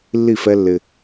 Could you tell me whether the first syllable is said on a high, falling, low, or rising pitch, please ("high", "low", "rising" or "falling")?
falling